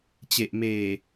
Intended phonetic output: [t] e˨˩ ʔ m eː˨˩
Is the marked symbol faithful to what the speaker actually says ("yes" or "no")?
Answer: no